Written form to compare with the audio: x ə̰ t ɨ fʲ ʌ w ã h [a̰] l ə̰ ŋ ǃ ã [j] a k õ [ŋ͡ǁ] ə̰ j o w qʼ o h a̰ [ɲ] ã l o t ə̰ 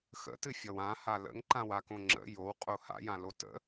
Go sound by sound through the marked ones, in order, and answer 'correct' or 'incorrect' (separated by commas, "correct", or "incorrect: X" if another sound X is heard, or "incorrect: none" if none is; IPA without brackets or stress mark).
incorrect: a, incorrect: w, correct, incorrect: j